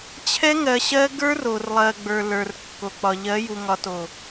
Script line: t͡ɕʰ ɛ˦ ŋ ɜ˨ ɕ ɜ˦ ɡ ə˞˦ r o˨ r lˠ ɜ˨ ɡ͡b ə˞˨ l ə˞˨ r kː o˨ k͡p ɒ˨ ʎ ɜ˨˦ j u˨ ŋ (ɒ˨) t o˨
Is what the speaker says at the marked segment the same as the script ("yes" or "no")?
yes